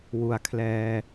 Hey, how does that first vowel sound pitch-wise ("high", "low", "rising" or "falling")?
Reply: low